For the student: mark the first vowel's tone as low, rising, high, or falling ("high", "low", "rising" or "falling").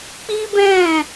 high